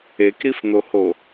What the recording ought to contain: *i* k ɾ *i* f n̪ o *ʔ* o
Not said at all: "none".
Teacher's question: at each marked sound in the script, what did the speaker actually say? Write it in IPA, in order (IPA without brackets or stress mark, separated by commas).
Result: e, i, h